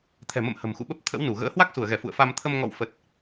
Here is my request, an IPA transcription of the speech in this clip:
t̪ʰɛ̤˨˩mə̰˧˨m hə̤˨˩mxṵ˧˨ɓə˦˥p̚t̪ʰə̰˧˥w nu˧˩ɣə̰ː˧˥ hwa˦˥k̚su˧˩ə̯ɣɛ˧˩ fṵ˧˨ə̯fa˧m t̪ʰə˧m ŋɔ̰˧˨w fə˨˩t̚

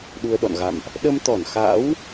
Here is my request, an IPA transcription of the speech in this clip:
ɗu˧ə̯ɗɔ̰˧˨n ɣa̰˧˨mʔ | ɗə˧mt̪ɔ˧˩nxa̰ː˧˥w

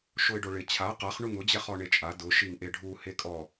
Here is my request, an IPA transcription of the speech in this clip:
ʃoɪ̯ɖoɭɪ t͡ɕʰa qaχ ɳuŋʊ d͡ʑɛχɔɳet͡ʃʼa dʊ ʃiŋʔeɖʱu hekʼɔ

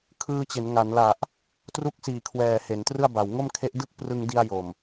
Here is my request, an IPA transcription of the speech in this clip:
kʰɯː˧t͡ɕe˩˦nŋa˩˦nla˨˩ʔ | tru˦˥k̚siː˨˩kʰwɛː˨˩ he˩˦ntrɯ˥˩a̯ba˨˩w ŋo˥˩mkʰe˦˥ʔ dɯ˥˩k̚prɯ˧ŋdi˧a̯ jo˨˩m

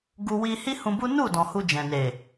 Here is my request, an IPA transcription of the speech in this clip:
ɡu˧ wi˧hi˦hũ˧bu˦ nu˦˨ dɔ̃˨hu˧ d͡ʒɛ̃˨ne˨

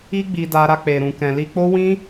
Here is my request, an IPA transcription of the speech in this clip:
i˧ ɡ͡bi˧da˧ ɾa˧k͡pe˨ɾũ˨kɛ̃˨ li˧k͡po˦ wĩ˦

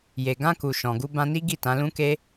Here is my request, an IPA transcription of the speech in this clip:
je˨ɡã˧ ku˨ ʃɔ̃˨ɡu˧bã˧ni˦ ɡi˦˨tã˨˦lũ˦ke˦

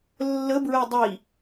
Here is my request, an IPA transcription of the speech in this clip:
lːəbɹɛ dˤi

